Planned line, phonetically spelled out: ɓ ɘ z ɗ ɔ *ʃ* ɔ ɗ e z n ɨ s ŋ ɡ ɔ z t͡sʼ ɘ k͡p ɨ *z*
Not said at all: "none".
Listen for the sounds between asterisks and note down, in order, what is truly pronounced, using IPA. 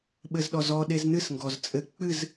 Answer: z, z

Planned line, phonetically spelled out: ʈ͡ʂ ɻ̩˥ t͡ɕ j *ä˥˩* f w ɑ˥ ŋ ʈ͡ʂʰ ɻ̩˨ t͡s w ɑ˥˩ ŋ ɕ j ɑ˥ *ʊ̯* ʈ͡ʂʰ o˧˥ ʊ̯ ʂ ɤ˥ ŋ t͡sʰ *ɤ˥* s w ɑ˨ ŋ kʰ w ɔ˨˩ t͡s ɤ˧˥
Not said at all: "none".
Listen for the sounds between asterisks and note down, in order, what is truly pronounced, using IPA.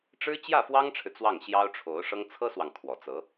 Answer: ä˥˩, ʊ̯, ɤ˥

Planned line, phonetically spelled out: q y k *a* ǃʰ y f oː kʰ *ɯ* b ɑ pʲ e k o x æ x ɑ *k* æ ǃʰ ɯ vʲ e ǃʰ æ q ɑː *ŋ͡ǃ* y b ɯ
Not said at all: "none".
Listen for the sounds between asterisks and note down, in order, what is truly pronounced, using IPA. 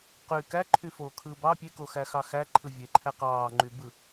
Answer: æ, ɯː, x, ŋ͡ǃ

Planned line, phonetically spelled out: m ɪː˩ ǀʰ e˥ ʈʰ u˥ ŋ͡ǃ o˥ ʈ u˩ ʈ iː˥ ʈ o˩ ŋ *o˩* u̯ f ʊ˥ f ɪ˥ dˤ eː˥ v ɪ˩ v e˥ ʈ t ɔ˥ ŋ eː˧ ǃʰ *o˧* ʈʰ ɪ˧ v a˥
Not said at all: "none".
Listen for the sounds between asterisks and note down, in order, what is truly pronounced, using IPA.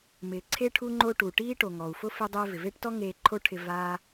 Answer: ɔ˩, o˥

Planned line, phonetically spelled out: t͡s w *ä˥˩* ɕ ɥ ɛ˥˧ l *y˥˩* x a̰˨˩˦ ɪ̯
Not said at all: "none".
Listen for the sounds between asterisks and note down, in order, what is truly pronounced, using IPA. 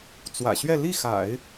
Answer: ä̰˨˩, i˥˩

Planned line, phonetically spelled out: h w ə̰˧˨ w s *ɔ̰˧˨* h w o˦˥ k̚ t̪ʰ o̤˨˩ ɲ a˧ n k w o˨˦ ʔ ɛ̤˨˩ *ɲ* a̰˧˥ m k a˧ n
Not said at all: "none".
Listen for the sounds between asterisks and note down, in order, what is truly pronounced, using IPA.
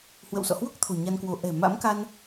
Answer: ɔ̰˧˨, m

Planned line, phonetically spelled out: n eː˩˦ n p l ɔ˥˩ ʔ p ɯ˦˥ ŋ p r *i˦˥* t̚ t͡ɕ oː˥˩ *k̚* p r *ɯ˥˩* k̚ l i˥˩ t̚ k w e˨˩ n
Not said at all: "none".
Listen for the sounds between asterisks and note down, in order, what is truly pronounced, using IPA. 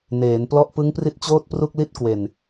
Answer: i˦˥, t̚, u˥˩

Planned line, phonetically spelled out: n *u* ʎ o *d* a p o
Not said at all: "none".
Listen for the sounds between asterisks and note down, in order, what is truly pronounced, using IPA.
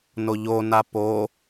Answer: o, n

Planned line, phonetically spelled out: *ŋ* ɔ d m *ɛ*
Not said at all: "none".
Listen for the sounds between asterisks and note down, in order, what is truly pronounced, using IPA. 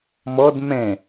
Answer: m, ɛ̃

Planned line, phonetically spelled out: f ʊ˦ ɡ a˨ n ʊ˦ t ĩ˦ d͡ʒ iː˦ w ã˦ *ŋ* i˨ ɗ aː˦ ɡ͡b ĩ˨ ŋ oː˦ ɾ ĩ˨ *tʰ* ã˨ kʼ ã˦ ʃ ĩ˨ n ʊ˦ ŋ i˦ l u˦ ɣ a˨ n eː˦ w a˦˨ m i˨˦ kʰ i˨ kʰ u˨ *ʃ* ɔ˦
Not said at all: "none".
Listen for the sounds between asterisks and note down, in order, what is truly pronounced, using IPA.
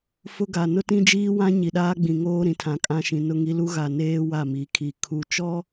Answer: ɲ, tʰ, t͡ʃ

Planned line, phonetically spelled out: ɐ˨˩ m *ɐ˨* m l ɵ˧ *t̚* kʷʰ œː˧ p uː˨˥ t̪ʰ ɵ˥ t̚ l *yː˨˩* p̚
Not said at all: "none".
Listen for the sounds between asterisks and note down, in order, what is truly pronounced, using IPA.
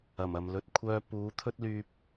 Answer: ɐ˨, t̚, yː˧

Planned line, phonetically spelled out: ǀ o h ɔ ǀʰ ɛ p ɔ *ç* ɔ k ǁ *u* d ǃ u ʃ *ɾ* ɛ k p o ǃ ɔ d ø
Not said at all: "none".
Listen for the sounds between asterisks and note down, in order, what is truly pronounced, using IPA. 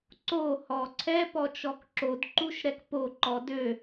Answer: t͡ʃ, o, ɾ

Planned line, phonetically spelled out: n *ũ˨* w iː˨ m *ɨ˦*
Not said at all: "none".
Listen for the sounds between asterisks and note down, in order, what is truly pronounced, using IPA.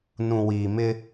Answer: ũ˨, ɪ˦

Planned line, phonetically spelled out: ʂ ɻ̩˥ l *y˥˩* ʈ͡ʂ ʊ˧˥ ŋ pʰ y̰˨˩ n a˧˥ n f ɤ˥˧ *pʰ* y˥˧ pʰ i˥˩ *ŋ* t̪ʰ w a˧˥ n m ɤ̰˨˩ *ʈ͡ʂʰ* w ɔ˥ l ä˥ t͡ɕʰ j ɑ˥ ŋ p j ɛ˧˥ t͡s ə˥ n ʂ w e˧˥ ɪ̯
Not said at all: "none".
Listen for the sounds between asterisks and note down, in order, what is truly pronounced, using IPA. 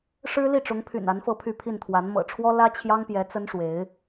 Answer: i˥˩, pʰ, n, ʈ͡ʂʰ

